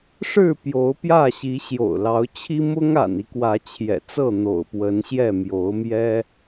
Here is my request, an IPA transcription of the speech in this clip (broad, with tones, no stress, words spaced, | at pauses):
ʂɻ̩˥˨ pjo˨˦ʊ̯pjä˥˨ɕi˨˦ ɕjo̰˨˩ʊ̯ lɑ˨˦ʊ̯t͡ɕʰi˦ mʊ˦ŋa̰˨˩ni˦ kwä˨˦t͡ɕʰjɛ̰˨˩t͡sɤ˥˨n̪o̰˨˩ʊ̯ pwə˨˦nɕjɛ˥˨ mjo˨˦ʊ̯mjɛ˦